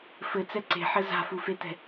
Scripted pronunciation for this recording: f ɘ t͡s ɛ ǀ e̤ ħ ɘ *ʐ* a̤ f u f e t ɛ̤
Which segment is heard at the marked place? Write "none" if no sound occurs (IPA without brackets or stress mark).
z